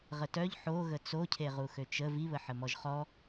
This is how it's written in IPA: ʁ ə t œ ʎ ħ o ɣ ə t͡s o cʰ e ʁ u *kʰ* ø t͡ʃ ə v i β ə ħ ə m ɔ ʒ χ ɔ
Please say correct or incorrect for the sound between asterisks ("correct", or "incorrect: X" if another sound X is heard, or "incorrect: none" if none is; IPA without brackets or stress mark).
incorrect: x